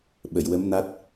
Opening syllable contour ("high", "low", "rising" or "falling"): low